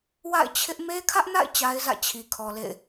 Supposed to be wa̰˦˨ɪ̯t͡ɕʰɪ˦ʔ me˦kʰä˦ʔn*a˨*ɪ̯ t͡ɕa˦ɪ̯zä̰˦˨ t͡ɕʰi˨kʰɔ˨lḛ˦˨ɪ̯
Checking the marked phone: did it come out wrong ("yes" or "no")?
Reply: yes